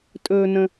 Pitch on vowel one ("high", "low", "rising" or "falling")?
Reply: low